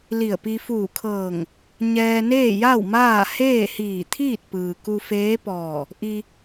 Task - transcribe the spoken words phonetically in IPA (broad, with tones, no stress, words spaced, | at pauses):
li˧˩ə̯pi˧ fuː˧˩kʰɤː˧˩ŋ | ɲɛː˧neː˥˨ ja˥˨w maː˥˨ heː˥˨hiː˧˩t̪ʰiː˥˨t̚ pɯː˩ ku˧feː˧˥pɔː˧˩ | ʔi˧